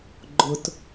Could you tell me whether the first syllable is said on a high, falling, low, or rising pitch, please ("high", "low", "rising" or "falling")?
high